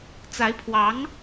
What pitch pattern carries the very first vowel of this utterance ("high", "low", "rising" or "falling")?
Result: rising